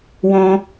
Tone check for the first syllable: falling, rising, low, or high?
high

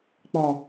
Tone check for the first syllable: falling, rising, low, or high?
low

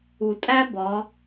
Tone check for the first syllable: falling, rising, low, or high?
low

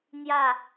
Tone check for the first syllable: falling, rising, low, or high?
falling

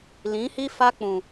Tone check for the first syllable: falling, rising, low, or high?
rising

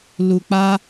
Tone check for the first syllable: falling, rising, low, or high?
low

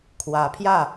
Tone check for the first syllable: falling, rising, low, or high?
rising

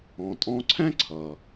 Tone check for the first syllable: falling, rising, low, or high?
low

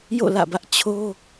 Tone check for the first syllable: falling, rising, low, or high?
falling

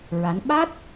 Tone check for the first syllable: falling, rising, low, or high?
rising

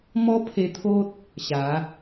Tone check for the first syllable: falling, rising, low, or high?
high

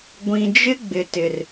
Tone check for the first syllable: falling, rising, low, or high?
low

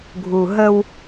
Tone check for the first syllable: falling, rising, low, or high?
low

